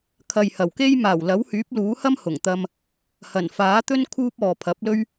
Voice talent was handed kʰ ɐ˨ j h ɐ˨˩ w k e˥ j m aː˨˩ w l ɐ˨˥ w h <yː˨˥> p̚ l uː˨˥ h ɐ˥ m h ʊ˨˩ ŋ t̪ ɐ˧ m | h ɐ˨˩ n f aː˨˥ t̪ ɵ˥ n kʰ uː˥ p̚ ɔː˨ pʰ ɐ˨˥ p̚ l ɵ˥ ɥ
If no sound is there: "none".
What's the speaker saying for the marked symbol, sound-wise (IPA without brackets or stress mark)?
yː˨˥